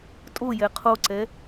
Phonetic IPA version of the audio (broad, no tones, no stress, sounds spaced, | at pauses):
tʼ o j ɛ qʰ o ǀ ɛ